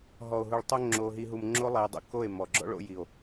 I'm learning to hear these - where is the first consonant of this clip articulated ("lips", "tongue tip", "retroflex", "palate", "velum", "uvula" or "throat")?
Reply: throat